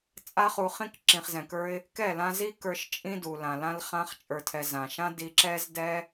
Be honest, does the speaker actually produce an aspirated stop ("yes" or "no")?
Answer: yes